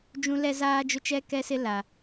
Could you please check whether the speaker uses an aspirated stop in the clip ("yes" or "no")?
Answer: no